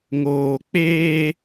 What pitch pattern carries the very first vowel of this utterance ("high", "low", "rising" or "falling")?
low